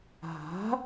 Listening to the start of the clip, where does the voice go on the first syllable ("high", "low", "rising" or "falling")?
rising